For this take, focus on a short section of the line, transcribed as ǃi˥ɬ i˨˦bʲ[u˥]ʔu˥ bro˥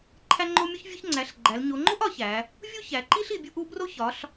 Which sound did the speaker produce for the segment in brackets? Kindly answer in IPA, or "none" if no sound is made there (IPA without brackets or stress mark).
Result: u˥